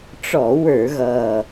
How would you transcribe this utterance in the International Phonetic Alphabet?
ʈ͡ʂɔ˧˩˧ wə˞˧˩˧ɣʌː˨˩

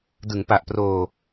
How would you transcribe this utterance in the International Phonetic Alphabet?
dɯ˩˦ŋpa˨˩ʔproː˧

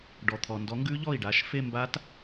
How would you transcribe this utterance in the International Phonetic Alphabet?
ɖɔ˨t̪ʰɔ˨ ndɔ˨˥ŋɡʉ˦˥ ʎɔ˥˩i̯ɖa˨˥ʃ fe˥˧mba˦˥t

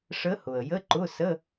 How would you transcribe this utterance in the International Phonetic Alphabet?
ʂə˧˥hʊ˩ə̯ jə˧˥˧ǃʊ˧˥˧ sə˧˥˧

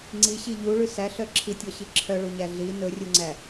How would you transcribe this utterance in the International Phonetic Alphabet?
ŋ͡ǀiɕi ʎuɭʉ sæɬœ ǁʰitʲɔɕi ǁʰœɭuɲæ ɮi nɵrʲuŋ͡ǀæ

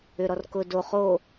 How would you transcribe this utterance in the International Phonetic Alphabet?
ʏɾɔr kʊ do χo

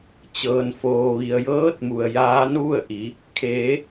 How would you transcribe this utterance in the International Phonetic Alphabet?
t͡ɕɤː˩nfoː˩ʋi˩ə̯ jɤː˧˥t̚mu˩ə̯ jaː˧˥nʋu˥˨ə̯ʔi˩˧ | kʰeː˩˧

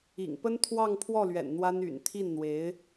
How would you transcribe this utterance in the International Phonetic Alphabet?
ḭ˨˩ŋ pə˥nt̪ʰwɑ˥˧ŋpʰwɔ˥˩lɥɛ̰˨˩n n̪wa˥ny̰˨˩n t̪ʰi˥˩nn̪we˧˥ɪ̯

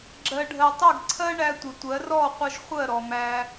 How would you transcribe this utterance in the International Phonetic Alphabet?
ɡ͡ǁɜ˨ɖʱɜ˨tˤɪ˦˨ɡ ǀʰɜ˦ɳæ˧tʷɪ˨ tʷɜ˨˦rɔ˦˨qʷʌ˧ʒ χʷɜ˦˨ɾɔ˨mæ˧

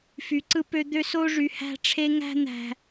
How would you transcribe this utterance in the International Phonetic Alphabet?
fy˨ǀɯ˦pø˦ d̪ø˦s o˦ʐy˨ hæ̤˦ʈ͡ʂʰe˦ ŋæ̤˦n̪æ̤˨

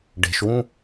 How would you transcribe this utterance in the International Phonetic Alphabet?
ɖe̤ʃwũ

